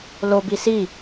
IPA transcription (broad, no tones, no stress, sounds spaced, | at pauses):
l o b i s i